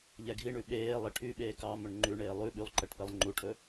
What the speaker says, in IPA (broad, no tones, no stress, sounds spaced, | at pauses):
ʎ ɛ ɡʱ i ɳ ʉ ɓ eː lˠ i ʈʰ y ɓ eː k ɑ m ɵ ɳ ŋ͡ǃ ʉ ɳ eː lˠ ʉ ɓ y lˠ ǃ ɛ ʈ p e lˠ ŋ͡ǃ u ʈʰ ɵ